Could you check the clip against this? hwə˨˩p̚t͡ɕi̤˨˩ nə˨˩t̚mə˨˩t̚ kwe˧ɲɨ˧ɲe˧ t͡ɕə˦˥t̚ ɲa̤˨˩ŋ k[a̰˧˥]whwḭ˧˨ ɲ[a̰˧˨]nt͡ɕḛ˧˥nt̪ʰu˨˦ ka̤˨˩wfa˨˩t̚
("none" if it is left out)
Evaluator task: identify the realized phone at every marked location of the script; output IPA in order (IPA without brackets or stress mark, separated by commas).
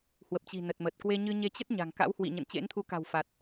a̰˧˥, ə̰˧˨